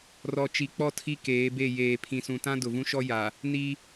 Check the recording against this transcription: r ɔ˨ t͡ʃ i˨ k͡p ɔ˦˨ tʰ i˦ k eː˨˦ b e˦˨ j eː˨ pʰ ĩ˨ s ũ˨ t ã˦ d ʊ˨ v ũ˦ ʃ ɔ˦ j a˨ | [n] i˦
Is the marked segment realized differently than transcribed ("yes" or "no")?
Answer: no